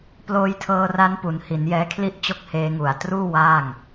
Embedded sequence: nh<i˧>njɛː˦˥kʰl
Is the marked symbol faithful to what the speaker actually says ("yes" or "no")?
no